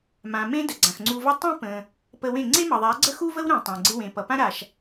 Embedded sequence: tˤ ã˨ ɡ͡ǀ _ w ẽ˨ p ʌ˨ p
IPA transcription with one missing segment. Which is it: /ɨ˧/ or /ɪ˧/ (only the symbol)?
ɪ˧